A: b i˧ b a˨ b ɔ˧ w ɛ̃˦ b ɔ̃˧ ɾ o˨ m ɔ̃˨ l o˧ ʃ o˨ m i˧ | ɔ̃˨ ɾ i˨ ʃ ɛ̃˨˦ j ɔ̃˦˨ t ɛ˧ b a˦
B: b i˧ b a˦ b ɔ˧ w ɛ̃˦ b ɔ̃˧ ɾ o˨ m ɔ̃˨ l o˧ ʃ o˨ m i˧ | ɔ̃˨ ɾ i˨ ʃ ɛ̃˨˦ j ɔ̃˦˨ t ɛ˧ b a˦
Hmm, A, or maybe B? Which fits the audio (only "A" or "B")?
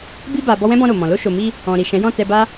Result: A